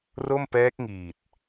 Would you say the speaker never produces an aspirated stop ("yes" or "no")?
yes